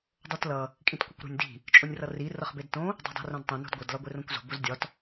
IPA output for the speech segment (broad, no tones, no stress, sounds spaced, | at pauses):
dˤ o t l ʌ | kʼ ĩ t kʷ ʌ kʷ ɾ o̤ nʲ d i̤ | t͡ʃʼ o nʲ r ʌ r i r ʌ χ b e d t õ | dˤ i̤ dˤ i̤ r õ d tˤ ĩ n o̤ d ɡʷ ʌ d l ɒ ɡʷ e r õ kʷ z o̤ b o z dʲ ɒ t